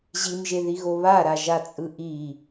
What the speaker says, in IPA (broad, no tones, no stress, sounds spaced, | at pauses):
ʑ i m ʒ e ð i ɣ o β a ɾ a ʒ a t͡sʼ ɯ ʔ i